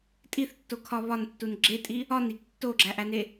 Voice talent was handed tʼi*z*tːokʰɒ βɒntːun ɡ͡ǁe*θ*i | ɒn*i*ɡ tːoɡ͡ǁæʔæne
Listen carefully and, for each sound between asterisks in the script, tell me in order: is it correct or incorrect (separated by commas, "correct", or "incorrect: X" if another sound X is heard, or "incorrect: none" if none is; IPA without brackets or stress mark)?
incorrect: θ, incorrect: tʼ, correct